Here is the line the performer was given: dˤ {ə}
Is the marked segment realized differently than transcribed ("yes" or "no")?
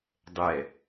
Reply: yes